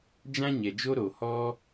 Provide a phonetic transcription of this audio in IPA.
d͡ʒ ã˦ ɲ ɛ˨ d͡ʒ o˦ ɾ o˨ h ɔ˦

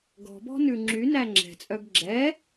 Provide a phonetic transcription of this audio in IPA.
ɡ ɔ̤ b ɔ̤ n ʉ ŋ͡ǁ y n æ ŋ͡ǁ ɛ̤ t͡sʼ œ ɡ ɡ͡ǁ ɛ

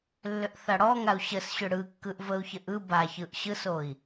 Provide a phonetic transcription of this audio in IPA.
lː ʏ ʔ θ a ɽ ɔ ŋ a u̯ ɕ ə s ɕ ʏ ɽ ɯ kː ɯ ʔ v ə u̯ ç ə ʔ ɯ b a ç ɯ ʔ ɕ ɯ s o i̯

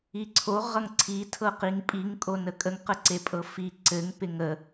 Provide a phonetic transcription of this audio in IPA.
i ǀʰ o ʁ ʌ ŋ ǀʰ i tʰ ɤ q i ŋ pʼ i ŋ kʼ o n ə kʼ ə ŋ q ə ǀ e pʼ ɤ f i ǀ ɘ ŋ p ɪ ŋ ə

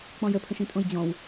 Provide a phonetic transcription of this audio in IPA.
k͡p ɔ̃ j ə pʰ ə̃ ʃ ĩ tʼ õ j d͡ʑ ɔ̃ w

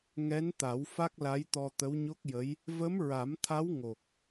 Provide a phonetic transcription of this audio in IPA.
ŋ ɛ˧˥ n t̪ a˨˩˦ w f a˦˥ k̚ l a˧˥ j t̪ ɔ˧ t̪ ə˧˥ w ɲ o˦˥ k̚ j ə˧˥ j | v ə˧˥ m ɹ a˨˩˦ m t̪ʰ a˧˥ w ŋ o˨˩ k̚

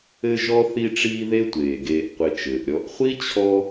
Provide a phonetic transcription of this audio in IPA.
ɘ˦ ʒ ɔ˥ θ i˦ ʈ͡ʂ iː˦ ð e˦ tʷ eː˩ ɡ eː˨ ʔ qʷ e˨ t͡ʃ ɘː˩ ʔ ɾʲ ɔ˨ ʔ χʷ i˥ t͡ɕʰ ɔ˦

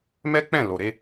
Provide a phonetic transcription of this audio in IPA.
m ɛ˦ k͡p ɛ̃˦˨ l o˨ ɾ e˧

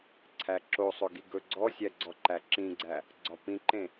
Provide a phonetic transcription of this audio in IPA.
ǀʰ æ ǁ o sˤ ɵ ɡ i ɡ ɵ ɡ͡ǀ ɔ sʲ æ ɡ͡ǀ ɔ ǃ æ ǁ ĩ ɡ͡ǀ æ | ɡ͡ǀ ɒ p ĩ ǃ ẽ

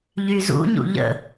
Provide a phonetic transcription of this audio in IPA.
ʎ y z ṵ ɲ ṵ ʎ ə̰

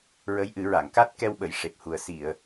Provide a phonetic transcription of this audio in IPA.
ɹ ə˧˥ j ʔ ɨ˨˩˦ ɹ a˨˩˨ ŋ k a˦˥ t̚ k ɛ˧ w ɓ ə˨˩˨ j ʂ e˨˩ p̚ h u˨˩ ə̯ s i˨˩˨ ə̯

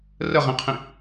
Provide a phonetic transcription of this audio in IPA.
r ə ʁ ĩ qʰ ĩ

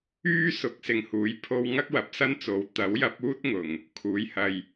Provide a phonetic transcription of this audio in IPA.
yː˥ s ʊ˨˥ k̚ s ɪ˨ ŋ h uː˨˥ j pʰ o˧ w ŋ ɐ˥ k̚ w ɐ˨˥ p̚ s ɐ˥ n t͡s o˨ w t̪ ɐ˨˥ w j ɐ˨˥ p̚ uː˥ t̚ ŋ ʊ˨ ŋ | kʰ uː˨˧ j h ɐ˧ j

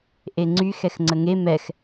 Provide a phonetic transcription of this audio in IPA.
ʔ e ŋ͡ǀ y x ɛ x ŋ͡ǀ ə ŋ e m ɛ x

